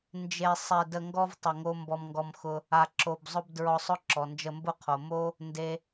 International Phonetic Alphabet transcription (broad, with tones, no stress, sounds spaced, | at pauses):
n d͡ʒ e˧ sˤ e˧ d ə˧ ŋ ɡ ɔ˥ v tˤ ə˧ ŋ o˥ m b ɔ˧ m ŋ ɡ ɔ˧ m x ʊ˧ | a˧ ǁ o˧ b zˤ ʊ˥ b d ɹ ɔ˧ sˤ ʊ˥ ǁ ɔ˩ n d͡ʒ ə˧ m b ʊ˥ qʰ o˩ m o˥ | n d e˥